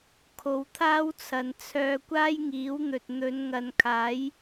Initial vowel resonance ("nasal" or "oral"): oral